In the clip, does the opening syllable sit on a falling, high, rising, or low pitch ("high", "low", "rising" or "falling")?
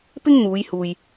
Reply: high